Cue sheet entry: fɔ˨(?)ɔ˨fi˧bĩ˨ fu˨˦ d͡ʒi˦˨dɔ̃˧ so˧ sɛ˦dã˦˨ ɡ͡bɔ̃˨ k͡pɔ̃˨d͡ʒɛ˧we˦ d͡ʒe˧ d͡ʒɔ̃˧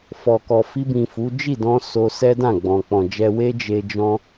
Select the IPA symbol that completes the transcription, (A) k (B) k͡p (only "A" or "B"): A